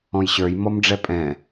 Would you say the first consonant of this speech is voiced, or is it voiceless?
voiced